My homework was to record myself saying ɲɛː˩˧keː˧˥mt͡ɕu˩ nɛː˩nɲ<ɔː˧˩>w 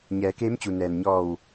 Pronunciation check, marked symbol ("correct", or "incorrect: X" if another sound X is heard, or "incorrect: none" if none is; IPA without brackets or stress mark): correct